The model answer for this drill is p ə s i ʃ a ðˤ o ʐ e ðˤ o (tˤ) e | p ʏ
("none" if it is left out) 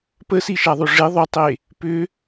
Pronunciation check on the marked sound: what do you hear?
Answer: tˤ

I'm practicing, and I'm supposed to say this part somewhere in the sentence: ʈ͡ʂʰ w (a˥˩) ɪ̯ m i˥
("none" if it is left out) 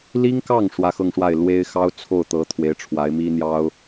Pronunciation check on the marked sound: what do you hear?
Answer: a˧˥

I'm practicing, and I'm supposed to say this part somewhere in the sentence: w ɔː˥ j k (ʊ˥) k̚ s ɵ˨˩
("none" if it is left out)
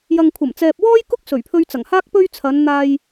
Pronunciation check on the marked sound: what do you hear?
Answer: ʊ˥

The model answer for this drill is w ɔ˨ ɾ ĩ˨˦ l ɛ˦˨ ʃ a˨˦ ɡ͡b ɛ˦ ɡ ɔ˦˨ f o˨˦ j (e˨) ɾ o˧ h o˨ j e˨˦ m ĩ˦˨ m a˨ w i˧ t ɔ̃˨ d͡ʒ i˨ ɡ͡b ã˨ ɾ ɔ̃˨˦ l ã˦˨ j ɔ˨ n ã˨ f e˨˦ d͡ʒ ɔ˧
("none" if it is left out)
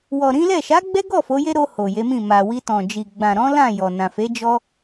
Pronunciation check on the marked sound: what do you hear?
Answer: e˦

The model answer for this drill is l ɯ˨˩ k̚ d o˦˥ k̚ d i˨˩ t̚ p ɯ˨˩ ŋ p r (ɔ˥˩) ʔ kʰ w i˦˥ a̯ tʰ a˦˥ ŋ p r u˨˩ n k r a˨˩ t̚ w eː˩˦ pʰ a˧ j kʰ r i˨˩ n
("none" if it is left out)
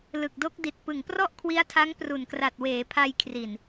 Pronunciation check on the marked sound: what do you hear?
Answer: ɔ˥˩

